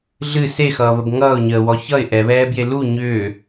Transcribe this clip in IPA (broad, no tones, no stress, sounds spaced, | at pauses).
ɮ ɨ s e x ʌː β ə b ŋ ʌː ʊ̯ ɲ əː w ɔ ç ʌ ɪ̯ ʔ ɛ β ɛː b j e l u ɲ ʏː